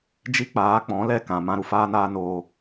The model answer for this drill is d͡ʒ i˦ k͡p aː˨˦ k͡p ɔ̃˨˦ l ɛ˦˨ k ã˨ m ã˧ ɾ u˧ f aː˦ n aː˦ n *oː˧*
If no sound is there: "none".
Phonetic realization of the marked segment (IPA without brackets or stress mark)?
oː˧